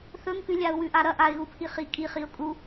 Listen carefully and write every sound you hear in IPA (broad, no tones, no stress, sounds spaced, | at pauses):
θ ɵ ŋ k ʉ lʲ a ʊ̯ w ʉ ʔ a ɾ ɐ ʔ a ɪ̯ ɣ u pʰ i χ i kʼ i χ i ʊ̯ kʼ u